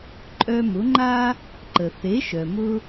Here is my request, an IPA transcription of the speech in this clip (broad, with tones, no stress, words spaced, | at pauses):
ǃʼœ˧mʊ˩˥ŋ͡ǃa˥ | ǃə˩θe˩˥ʃœ˩mʊ˧